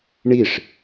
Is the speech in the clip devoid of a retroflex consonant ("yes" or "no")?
no